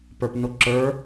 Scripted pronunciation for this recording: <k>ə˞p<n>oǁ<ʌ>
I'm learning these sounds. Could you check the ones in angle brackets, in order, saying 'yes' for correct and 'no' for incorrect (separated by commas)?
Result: no, yes, no